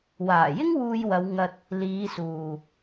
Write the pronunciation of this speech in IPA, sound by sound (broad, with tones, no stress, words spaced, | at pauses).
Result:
waː˨˩jɪ˥ŋ wuː˧jwɐ˨˧w ŋɐ˧t̚ | liː˨˧suː˨